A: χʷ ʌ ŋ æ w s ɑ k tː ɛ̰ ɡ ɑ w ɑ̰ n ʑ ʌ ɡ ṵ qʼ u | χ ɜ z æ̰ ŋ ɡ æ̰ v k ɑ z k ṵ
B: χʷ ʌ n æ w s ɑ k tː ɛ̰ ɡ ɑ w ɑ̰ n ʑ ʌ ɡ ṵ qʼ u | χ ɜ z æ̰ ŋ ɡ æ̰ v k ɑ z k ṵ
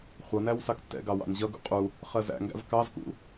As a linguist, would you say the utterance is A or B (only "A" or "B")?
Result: B